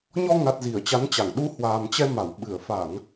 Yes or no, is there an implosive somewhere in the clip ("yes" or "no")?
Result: yes